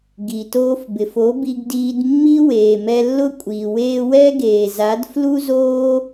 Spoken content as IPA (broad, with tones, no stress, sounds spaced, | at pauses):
ɡ i˨ t oː˧ f b ɪ˨ f o˨˦ b i˧ ɡ d iː˧ d mː i˦ w eː˨ m ɛ˧ lː ʊ˦ kʷʼ iː˨ w eː˧ w ɛ˦ ɡ eː˨ z a˨˦ d f l u˦ z oː˦